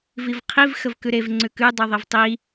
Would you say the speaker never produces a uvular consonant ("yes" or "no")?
no